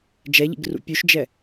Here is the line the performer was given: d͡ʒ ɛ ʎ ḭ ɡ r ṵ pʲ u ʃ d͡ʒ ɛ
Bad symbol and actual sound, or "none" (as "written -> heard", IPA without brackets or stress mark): none